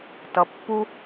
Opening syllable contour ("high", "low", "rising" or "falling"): low